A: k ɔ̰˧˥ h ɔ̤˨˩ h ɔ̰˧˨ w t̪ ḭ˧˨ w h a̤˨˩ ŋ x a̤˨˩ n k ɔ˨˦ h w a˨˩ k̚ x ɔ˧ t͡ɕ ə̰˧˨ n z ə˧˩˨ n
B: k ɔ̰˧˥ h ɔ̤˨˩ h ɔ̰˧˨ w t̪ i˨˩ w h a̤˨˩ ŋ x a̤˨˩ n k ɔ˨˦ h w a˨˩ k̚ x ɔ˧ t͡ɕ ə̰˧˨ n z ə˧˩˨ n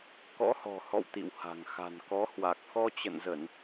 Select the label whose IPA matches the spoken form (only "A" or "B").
A